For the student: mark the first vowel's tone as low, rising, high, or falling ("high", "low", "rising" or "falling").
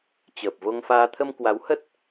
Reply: low